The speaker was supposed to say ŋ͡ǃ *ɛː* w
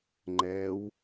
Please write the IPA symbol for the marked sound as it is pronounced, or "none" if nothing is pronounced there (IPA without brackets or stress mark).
ɛː